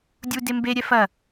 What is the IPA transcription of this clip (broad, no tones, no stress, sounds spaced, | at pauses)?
dʲ u d e m b e ɾʲ ɛ f ɐ